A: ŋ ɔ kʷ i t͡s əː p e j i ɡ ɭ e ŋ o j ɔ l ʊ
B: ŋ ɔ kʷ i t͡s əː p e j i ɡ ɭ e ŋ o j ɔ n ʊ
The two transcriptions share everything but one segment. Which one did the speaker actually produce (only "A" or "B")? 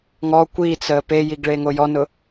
B